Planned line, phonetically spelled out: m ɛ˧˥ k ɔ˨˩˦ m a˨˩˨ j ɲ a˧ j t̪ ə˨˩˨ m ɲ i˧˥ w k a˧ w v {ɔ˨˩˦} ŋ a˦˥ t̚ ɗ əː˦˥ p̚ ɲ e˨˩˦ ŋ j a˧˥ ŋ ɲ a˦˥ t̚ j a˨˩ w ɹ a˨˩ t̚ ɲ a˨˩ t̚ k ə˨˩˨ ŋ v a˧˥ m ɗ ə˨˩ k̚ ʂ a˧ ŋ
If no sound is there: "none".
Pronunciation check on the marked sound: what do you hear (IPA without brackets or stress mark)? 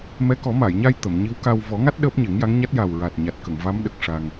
ɔ˨˩˦